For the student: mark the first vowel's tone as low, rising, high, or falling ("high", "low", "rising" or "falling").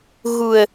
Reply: low